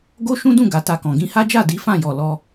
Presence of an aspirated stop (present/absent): absent